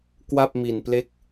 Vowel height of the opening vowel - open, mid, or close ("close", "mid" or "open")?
open